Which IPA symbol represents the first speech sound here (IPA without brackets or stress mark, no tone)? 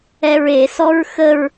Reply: ɛ